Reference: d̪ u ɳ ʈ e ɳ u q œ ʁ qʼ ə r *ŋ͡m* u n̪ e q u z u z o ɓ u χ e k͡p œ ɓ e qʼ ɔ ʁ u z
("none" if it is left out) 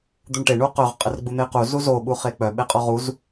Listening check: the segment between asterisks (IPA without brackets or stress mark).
ɡ͡b